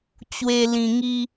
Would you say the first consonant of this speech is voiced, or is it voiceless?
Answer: voiceless